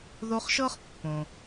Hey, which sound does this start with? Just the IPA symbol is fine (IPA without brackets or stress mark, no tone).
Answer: ð